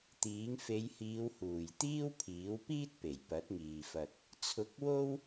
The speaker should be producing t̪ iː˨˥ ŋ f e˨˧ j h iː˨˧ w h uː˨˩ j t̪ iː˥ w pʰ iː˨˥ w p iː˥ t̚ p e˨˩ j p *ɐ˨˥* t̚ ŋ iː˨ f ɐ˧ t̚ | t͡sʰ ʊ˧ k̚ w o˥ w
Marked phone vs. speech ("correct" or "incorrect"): correct